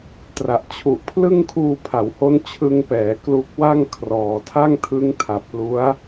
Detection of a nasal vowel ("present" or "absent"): absent